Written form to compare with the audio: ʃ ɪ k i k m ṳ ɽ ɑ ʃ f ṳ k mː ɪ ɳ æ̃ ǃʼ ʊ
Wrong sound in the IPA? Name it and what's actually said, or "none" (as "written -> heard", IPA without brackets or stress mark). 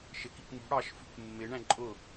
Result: none